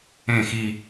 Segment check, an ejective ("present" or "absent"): absent